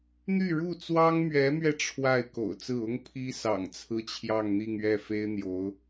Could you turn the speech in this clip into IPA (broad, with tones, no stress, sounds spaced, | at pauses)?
n̪ y˥˧ ɻ u˥˩ t͡s w ɑ˥ ŋ m ɥ ɛ˧˥ m ɥ ɛ˧ ʈ͡ʂʰ w a˥˩ ɪ̯ k o̰˨˩ ʊ̯ t͡s ɹ̩˥˩ ʊ˥ ŋ pʰ i˥ s ɑ̰˨˩ ŋ t͡sʰ ɹ̩˥ t͡ɕʰ j ɑ˥˧ ŋ n̪ i˥˧ ŋ ɥ ɛ˥˩ f e˥ ɪ̯ n̪ j o˧˥ ʊ̯